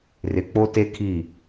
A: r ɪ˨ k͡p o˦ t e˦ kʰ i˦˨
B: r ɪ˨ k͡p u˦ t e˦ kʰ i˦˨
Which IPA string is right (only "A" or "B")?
A